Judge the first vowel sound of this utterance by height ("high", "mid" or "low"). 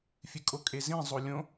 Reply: high